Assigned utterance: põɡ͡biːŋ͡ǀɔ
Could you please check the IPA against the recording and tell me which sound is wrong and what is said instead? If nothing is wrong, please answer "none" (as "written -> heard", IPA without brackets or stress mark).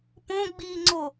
ɔ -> o